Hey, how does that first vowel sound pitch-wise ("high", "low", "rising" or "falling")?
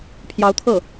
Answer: rising